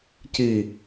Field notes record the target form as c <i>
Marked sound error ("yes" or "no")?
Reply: no